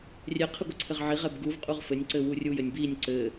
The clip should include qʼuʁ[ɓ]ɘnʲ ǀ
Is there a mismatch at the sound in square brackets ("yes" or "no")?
yes